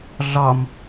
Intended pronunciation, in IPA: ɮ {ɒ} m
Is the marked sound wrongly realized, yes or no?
no